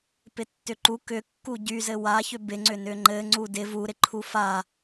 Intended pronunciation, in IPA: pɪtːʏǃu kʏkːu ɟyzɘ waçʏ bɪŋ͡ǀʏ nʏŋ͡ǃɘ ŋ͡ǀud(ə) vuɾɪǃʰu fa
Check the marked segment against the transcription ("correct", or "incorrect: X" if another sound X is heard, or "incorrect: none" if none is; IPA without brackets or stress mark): incorrect: ɪ